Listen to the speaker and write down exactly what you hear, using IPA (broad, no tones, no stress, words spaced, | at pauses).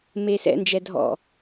meːsɛ̰nd͡ʒɛ dʱɔ̰